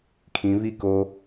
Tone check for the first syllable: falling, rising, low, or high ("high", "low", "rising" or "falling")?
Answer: rising